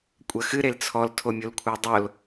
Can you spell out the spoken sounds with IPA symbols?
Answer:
kʷʼ ɐ x ɨ ɾ e l t͡sʰ ɔ l tʰ o mʲ o l kʷʰ a dˤ o l

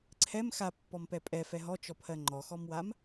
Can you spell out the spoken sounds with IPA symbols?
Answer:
ǀʰ ɛ m x a pː ɔ m p ɛ pʼ ɛ f ɛ ɦ ɔ t͡ʃ ɔ pʰ ɜ ŋ͡ǃ ɔ x ɔ m w a m

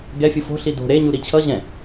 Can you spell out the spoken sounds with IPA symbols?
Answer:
ɡ ɛ fʲ ɯ f o̤ ɬ i d o̤ ɾ e ɲ u ɾ i t͡ɕʰ ʌ ʑ ɛ̃

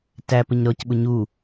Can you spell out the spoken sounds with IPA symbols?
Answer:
t æ p ə ɲ ɾ ɔ c ɓ ʊ ɲ u

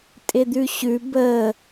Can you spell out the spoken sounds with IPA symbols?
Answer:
tʼ ɪ d̪ ʉ ɕ ʉ b ə

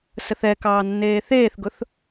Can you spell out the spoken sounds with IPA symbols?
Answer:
s ə θ ɛ k ɑː nː eː θ eː θ ɡ ʊ θ

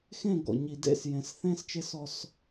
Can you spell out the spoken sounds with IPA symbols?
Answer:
x ẽ˦˨ ɡ ɔ̰˨ ɲ i˨ d ḛ˦ s j ẽ˨ s θ ẽː˦ s t͡ʃ e˦ s ɔ˦ s

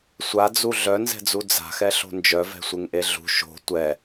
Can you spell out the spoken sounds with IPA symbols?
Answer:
sʷ a d͡z u ɮ œ n z ɛ̤ d͡z u d͡z a̤ x ɛ ɬ o̤ n d͡ʒ œ v ɛ̤ sʷ e ŋ ʔ e ɮ ṳ ʃ o̤ tʷ ɛ

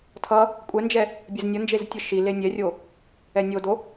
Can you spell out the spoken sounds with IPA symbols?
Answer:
tʰ ʌ | kʷʼ ɛ n d͡ʒ ɛ | bʲ ɛ z nʲ ʌ n d͡ʒ e z tʲ ɯ ʃ i l e nʲ ɛ rʲ o | ɛ nʲ o d o

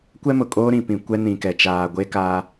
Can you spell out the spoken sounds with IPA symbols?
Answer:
kʷ ɛ˦ m ʊ˨ kʼ oː˦ ɾ ĩ˨ p ĩ˨ kʷ ɛ˦ n ĩ˨ k ɛ˨ t͡ʃ aː˨ ɡʷ e˦ k a˦

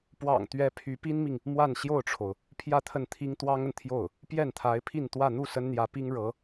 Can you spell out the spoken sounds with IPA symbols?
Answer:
p w ɑ̰˨˩ ŋ t̪ ɥ ɛ˥ pʰ y˧˥ p i˥ n m i˨ ŋ | m w a˥˧ n ɕ j o˥˩ ʊ̯ ʈ͡ʂʰ o˩ ʊ̯ | pʰ j ä˥˧ t̪ʰ ə˥˩ n t̪ʰ i˥ ŋ t̪ w ɑ˥ ŋ ə˨ n t̪ʰ j o˥˩ ʊ̯ | p j ɛ˥˩ n t̪ʰ a˧˥ ɪ̯ pʰ i˥˧ n t̪ w ä˥˧ n̪ u˥˩ s ə˥ n n̪ j ä˧˥ p i˥ ŋ ɻ ɤ˧˥

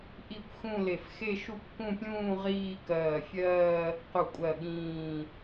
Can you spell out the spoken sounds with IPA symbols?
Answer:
ʔ i˥˧ kʷ x ũ˥˧ l e˧˩ f x e˥˧ ʃ u˥˧ p k ũ˥˧ pʲ ũː˥˧ ʁ iː˥˧ k ɜː˧˩ fʲ ɜː˥˧ | q u˧˩ kʷʼ ɜ˧˩ ɠ ĩː˧˩

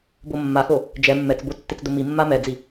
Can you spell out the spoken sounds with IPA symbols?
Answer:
b o mː a x o | d͡ʒ ɛ mː ɛ t͡s b o tː ɪ t͡s d ʊ m i mː a m ɛ d͡z i

